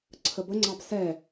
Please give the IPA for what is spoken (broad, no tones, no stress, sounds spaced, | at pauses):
ǀʰ ə b ə ŋ͡ǀ ɑ b s ɛ